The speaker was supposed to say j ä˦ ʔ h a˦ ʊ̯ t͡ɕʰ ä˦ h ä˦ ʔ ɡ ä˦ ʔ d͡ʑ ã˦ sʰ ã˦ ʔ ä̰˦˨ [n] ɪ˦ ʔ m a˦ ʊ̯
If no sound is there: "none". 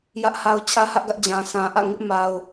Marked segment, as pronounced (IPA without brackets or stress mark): ŋ